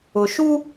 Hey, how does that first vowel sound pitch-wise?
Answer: low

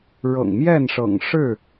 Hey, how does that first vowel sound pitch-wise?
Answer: low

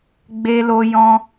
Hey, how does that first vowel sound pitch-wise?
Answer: high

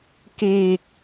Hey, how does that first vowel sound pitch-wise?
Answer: low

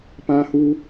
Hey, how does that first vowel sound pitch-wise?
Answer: high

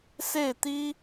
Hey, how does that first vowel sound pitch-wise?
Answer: falling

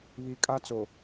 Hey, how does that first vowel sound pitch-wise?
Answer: low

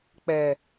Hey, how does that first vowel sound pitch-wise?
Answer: low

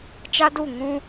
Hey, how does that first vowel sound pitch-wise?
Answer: high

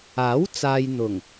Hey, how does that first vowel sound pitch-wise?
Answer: rising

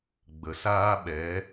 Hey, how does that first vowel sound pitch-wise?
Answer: low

